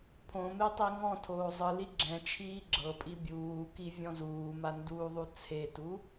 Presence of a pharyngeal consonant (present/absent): absent